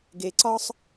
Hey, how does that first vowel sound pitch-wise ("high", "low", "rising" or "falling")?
low